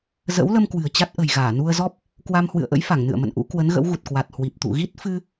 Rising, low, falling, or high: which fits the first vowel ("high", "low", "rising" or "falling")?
rising